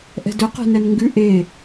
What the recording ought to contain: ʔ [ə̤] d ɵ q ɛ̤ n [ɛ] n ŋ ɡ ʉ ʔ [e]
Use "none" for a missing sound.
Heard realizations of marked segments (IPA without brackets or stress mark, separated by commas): ɛ̤, ɛ, e